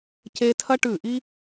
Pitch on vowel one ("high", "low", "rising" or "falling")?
high